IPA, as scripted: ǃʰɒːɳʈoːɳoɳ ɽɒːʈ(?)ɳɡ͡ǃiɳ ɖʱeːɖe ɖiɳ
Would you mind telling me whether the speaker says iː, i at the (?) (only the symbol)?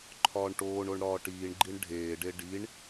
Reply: iː